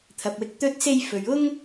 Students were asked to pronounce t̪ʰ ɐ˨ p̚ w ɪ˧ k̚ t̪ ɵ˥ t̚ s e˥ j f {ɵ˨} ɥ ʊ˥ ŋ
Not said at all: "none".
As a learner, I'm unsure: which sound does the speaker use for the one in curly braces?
ɵ˨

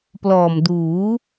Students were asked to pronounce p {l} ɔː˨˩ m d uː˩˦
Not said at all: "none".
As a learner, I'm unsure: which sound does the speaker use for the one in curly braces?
l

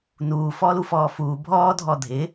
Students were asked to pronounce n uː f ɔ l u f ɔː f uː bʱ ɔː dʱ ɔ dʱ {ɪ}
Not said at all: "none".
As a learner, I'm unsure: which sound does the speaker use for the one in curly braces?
ɪ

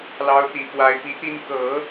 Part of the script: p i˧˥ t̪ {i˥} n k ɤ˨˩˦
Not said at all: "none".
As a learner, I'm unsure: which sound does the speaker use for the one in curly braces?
i˥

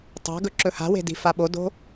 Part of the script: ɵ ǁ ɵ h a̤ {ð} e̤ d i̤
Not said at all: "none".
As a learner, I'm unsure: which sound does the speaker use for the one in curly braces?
w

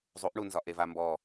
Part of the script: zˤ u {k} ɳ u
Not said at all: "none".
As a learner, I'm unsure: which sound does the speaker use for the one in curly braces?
ʔ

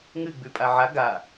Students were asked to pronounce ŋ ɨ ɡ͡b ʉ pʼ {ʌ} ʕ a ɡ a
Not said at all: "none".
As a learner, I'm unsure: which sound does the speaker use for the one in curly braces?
a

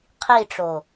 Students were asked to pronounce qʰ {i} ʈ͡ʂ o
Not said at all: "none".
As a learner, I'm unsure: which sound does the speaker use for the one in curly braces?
i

